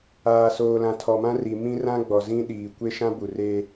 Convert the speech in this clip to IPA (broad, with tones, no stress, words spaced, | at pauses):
aː˨soː˨lã˨ tʰɔ˨mã˦ri˨ mĩ˦rã˦ ɡ͡bɔ˨zĩ˦ ɗiː˨ kʷe˦ʃã˦ bu˨re˦